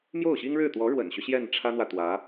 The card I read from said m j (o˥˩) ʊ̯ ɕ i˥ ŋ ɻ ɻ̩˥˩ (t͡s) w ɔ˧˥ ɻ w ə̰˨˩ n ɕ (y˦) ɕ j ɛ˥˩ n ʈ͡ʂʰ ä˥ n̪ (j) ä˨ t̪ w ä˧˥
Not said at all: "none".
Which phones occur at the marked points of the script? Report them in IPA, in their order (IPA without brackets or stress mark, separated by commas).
o˥˩, t̪, y˦, w